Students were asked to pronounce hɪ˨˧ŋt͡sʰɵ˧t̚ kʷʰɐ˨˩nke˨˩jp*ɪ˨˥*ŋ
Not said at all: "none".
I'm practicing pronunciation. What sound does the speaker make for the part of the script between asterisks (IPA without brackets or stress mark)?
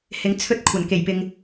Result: ɪ˨